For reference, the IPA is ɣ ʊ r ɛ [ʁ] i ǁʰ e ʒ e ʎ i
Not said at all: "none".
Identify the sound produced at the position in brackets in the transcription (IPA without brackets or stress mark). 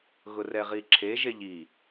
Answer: ʁ